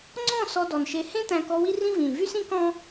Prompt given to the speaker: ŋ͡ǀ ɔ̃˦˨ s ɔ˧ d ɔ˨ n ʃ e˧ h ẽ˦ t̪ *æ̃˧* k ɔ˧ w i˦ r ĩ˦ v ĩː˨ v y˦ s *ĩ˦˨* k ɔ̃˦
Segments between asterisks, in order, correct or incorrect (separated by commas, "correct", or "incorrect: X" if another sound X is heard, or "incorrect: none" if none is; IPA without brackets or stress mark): correct, incorrect: ĩ˦